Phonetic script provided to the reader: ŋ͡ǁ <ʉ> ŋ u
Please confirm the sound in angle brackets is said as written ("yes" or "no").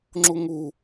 no